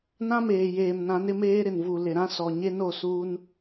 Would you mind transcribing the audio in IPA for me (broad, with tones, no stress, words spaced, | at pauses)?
nã˦meː˨jeː˨mnã˨˦n ɪ˦meː˦ ɾɪ˨nvu˨lɪ˨ɾã˦ sɔ˨ ɲe˦no˦˨suː˦n